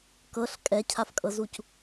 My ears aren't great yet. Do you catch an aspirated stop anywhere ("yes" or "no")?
yes